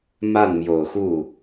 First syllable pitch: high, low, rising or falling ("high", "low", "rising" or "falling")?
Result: falling